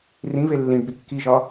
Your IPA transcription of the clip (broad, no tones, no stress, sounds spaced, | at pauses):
r ĩ v e lː ĩ ɖ b i kː i ʒ ɒ